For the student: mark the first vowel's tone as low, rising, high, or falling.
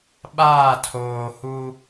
falling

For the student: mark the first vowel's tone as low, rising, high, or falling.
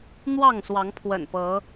falling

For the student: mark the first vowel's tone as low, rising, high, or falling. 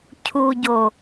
low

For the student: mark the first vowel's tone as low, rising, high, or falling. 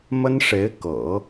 high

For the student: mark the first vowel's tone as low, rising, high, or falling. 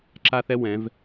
high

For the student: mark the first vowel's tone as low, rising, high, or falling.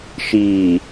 low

